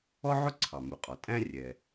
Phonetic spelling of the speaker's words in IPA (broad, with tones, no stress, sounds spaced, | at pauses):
ɔ˥ ʕ ʊ˥ ǀʰ ɑ˩ m u˩ qʼ ɒ˩ tʼ æ̃˥ rʲ ɛ˩